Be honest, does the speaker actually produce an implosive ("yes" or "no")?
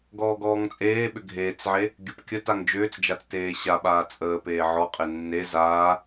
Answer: yes